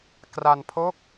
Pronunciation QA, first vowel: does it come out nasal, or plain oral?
oral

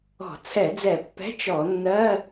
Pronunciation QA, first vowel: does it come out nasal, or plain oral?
oral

